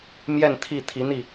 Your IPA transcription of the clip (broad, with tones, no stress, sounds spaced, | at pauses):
m j ɛ˥˧ n t̪ʰ i˥˩ t̪ʰ i˧˥ n̪ i˥˩